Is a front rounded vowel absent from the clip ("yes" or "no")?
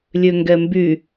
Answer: no